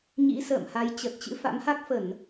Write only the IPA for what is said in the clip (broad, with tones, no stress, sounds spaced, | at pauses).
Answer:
ɲ ḭ˧˥ s ə̰ː˧˨ m h a˨˦ j t͡ɕ ə˨˩ t̚ t͡ɕ ɨ̰˧˥ f a̰˧˥ m h a˦˥ k̚ f ə˧˩˨ n